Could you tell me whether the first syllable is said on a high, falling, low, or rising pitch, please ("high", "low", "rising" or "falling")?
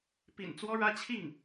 low